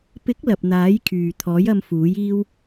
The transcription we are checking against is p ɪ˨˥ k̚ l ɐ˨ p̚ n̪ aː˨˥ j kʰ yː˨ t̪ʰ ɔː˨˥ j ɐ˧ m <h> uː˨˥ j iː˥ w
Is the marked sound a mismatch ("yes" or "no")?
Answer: yes